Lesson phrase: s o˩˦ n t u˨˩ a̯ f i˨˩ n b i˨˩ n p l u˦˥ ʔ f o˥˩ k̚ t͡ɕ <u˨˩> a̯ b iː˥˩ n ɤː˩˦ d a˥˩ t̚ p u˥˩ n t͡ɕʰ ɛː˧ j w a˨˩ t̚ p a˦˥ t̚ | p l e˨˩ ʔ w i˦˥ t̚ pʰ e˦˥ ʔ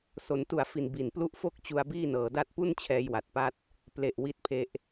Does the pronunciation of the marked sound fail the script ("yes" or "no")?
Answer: yes